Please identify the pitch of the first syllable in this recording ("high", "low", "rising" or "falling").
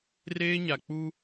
high